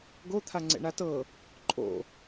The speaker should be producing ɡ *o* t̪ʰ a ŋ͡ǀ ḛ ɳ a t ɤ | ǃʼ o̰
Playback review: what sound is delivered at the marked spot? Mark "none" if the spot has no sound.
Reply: o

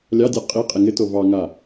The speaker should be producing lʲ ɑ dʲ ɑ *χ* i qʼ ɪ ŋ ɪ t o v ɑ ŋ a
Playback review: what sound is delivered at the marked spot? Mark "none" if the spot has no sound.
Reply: qʼ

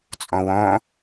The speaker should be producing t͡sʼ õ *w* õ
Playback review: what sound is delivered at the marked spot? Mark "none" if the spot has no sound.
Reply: w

